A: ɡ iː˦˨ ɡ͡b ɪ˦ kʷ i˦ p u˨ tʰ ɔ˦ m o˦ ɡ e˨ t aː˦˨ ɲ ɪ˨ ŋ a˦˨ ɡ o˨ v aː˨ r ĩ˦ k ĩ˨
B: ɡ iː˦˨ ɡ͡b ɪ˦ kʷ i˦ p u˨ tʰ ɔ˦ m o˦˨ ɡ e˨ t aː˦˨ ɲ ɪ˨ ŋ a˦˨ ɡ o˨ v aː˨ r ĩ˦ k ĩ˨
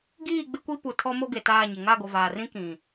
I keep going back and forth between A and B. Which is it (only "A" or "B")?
A